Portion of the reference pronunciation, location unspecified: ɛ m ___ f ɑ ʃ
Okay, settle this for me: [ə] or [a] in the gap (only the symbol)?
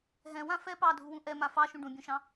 a